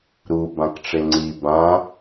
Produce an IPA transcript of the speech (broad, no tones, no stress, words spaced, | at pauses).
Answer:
ɾu bãkʈ͡ʂeŋ͡ǀi bã